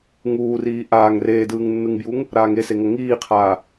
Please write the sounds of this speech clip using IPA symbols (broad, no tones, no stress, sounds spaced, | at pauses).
ŋ uː r iː ʔ aː ŋ r eː d ɯː ŋ nː ɯ ŋ b j u ŋ | ɾ aː ŋ e s e ŋ ɤ ŋ iː qʰ aː